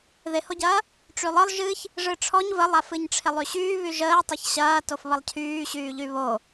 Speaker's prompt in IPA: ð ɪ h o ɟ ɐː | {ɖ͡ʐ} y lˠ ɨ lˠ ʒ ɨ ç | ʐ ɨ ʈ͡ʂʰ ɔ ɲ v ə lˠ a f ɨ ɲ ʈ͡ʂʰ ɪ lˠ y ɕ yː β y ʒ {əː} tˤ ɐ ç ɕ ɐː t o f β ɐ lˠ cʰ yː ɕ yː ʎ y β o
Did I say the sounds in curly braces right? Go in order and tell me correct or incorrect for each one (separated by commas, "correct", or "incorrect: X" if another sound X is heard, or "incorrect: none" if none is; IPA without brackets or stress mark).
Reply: incorrect: ʈ͡ʂ, correct